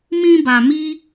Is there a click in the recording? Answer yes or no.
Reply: no